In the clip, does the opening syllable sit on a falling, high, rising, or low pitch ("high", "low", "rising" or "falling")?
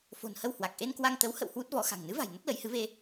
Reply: low